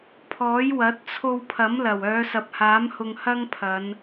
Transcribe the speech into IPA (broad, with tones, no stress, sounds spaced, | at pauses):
pʰ ɔː˨˥ j w ɐ˨˥ t̚ t͡sʰ o˧ w pʰ ɐ˨˥ m l ɐ˨˩ w œː˨˧ s ɐ˨ p̚ h aː˨˥ m h ʊ˧ ŋ h ɐ˥ ŋ pʰ ɐ˨˧ n